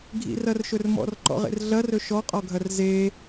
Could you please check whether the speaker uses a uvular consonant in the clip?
yes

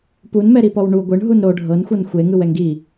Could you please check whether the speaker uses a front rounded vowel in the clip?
no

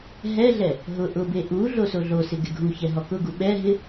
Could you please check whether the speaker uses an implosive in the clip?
yes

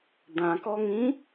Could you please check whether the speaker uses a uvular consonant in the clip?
no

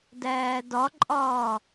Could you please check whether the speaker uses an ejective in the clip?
yes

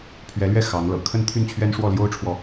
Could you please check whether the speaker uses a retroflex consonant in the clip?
yes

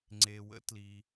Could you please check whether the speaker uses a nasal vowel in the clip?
no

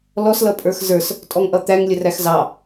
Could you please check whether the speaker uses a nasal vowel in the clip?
no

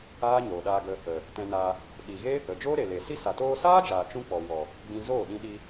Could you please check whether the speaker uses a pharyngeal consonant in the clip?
no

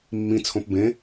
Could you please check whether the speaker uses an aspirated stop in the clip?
yes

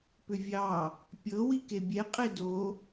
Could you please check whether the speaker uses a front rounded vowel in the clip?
yes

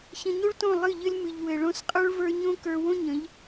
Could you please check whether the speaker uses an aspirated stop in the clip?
no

